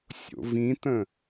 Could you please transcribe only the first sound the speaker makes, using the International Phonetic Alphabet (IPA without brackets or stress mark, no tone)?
sʲ